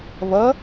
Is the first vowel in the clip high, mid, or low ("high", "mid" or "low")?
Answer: mid